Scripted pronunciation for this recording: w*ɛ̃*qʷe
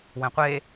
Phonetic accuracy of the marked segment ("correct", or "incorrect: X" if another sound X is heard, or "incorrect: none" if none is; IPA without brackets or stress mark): correct